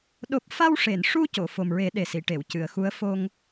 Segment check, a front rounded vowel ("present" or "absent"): absent